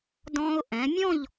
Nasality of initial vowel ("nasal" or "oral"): nasal